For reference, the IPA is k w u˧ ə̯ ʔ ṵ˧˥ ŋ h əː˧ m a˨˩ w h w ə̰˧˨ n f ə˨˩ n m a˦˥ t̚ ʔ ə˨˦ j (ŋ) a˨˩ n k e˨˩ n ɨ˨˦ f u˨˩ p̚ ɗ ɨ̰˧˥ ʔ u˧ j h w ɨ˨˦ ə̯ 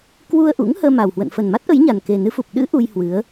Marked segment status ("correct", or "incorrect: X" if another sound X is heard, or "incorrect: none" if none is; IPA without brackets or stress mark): incorrect: ɲ